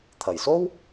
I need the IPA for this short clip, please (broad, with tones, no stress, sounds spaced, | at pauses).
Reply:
t̪ʰ ɐ˨˩ j s o˥ w